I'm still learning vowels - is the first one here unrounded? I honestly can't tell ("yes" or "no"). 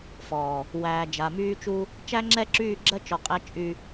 no